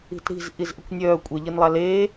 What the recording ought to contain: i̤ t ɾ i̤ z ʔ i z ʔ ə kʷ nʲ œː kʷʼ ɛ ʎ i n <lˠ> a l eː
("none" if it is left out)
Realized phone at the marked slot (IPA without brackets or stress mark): lˠ